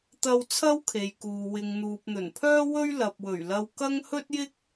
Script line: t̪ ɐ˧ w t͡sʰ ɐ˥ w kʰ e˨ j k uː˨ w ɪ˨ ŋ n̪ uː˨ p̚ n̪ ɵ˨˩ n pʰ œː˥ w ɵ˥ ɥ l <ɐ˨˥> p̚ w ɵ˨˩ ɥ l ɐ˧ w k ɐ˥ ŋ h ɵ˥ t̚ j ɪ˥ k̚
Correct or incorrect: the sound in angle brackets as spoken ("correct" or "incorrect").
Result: incorrect